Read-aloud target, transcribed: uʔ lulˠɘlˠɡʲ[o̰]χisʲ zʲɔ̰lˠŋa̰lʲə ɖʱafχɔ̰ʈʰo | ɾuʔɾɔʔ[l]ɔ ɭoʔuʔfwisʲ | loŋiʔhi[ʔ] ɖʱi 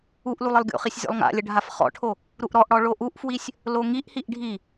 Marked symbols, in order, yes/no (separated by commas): yes, no, yes